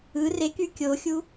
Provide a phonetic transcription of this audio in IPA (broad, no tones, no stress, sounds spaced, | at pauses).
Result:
ɯ r e k y kʲ o xʲ u